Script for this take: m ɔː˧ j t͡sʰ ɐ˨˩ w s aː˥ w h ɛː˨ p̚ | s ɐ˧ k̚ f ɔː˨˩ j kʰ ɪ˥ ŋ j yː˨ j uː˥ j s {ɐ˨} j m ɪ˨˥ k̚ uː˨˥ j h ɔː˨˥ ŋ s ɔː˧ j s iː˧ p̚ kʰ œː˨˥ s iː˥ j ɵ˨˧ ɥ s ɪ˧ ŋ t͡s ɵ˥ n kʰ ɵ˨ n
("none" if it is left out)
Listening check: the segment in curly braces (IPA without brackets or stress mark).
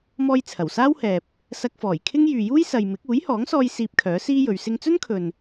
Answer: ɐ˨